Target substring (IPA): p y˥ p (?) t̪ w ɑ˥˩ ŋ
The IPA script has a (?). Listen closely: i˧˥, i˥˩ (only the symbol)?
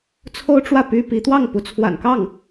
i˧˥